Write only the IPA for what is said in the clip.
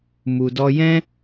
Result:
mu˨dɔ˧jɛ̃˦

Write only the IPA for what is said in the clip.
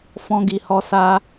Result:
fɔ̃˧ɡi˨hɔ˧ sa˧

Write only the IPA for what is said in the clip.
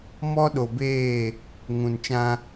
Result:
mɔ˦ɗo˨beː˦˨ | ŋũ˨nt͡ʃã˦

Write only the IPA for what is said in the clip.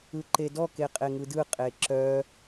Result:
ɯǃedɔ keqʼeŋɯdɯ qʼeǁœ

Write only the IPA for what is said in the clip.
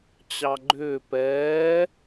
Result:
t͡ɕɑɡ͡ǃʏː pɛː

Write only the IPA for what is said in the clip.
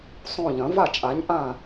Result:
sˤõ˦˨ʎɐ̃˨˥ va˦˨t͡ʃʼa˨˥ɲʔã˦˨

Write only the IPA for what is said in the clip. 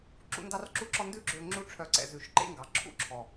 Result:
ǁṵ˦ndɑ˦rǁu˦ǁɔ˦ ndʉ˦ɡ͡ǁø˧ ŋ͡ǁu˦ʈ͡ʂʰœ˧ ǀɛ̰˨zʉ˨ʃ ǃḛ˦ŋɡɑ˨ǁʰṵ˦ ǁʰɔ˨

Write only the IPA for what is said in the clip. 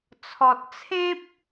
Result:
t͡sʰɔ˨t̚t͡sʰẽ˦p̚

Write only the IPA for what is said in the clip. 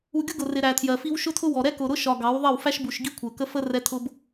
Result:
u˨ ɡʲʊ˦ɡʊ˨rɪ˨ ɾæ˨tʰjɜ˨fi˦w ʃʊ˦tʰʊ˦wɔ˨ ɾɛ˦kʊ˨ɾʊ˦ʃɒ˨ ɡɑ˨˦wðˤʌ˦˨w fæ˦ʃbu˨ʃ ɡi˦kʷʰɜ˨kə˦ fə˦ rɛ˦tʰʊ˦b

